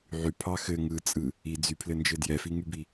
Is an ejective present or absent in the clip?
present